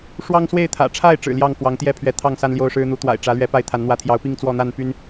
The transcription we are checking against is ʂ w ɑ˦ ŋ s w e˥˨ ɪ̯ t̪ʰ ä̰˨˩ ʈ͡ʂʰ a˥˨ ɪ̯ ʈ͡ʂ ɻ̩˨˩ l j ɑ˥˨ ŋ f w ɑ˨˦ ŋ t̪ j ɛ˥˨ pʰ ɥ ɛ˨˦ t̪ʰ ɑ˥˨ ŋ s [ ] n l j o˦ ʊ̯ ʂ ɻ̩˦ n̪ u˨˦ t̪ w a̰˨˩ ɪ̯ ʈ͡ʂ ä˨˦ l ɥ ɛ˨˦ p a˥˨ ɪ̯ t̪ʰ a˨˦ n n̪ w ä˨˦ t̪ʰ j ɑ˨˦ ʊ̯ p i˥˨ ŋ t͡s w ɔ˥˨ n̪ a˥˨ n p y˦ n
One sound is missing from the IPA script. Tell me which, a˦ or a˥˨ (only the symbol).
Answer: a˦